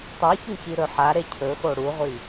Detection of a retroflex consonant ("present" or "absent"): present